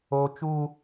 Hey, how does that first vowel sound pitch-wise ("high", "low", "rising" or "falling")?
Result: high